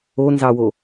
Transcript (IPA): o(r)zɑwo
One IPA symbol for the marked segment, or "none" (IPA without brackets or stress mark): n